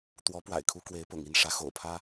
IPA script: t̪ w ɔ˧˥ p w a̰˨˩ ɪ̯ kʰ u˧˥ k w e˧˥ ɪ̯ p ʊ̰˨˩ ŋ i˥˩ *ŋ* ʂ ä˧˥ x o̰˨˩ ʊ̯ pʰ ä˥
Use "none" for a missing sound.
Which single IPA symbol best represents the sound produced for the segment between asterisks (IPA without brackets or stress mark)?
n